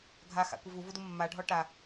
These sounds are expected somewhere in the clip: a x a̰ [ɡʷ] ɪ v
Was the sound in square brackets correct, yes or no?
no